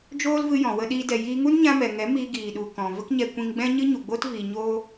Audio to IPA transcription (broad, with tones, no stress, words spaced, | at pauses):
d͡ʒoː˦lvɨ˧ jɔ̃˨wə˧ɗiː˧ dɛ˨jiː˧ŋu˦n ɲã˧mɛ˨ŋɛ˨˦ miː˧ɡiː˨ɗu˨ kɔ̃˨ və˦kɲɛ˧ kʷĩ˧ŋɡ͡bɛ̃˦ ɲɨ˦ɲu˨ɡ͡bo˦tviː˨ ɲoː˦